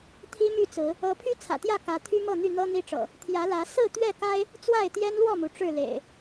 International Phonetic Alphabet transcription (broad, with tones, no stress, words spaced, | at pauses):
t̪ʰi˦my˥˨t͡sɹ̩˨˦ | ɤ˨˦pʰy˦ t͡sʰä̰˨˩t̪jä˥˨ kä˨˦t̪ʰy˦mɤ˥˨ n̪y˥˨n̪ɤ˦n̪i˦ʈ͡ʂɤ̰˨˩ | t̪ʰjä˨˦lä˨˦ sɹ̩˥˨t̪ɥɛ˥˨ka˦ɪ̯ | t͡swa˥˨ɪ̯t̪jɛ˦nlwɔ˥˨mu˩ ʈ͡ʂɻ̩˥˨lḛ˨˩ɪ̯